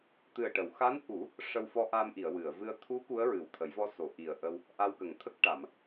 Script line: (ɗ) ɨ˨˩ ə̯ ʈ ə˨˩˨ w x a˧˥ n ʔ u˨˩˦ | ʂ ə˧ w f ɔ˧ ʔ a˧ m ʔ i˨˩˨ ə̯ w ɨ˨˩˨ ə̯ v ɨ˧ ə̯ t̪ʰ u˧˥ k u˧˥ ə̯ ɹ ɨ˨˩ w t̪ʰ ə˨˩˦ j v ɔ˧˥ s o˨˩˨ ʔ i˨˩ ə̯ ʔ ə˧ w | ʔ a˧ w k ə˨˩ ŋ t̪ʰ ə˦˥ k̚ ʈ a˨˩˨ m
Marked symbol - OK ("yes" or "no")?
no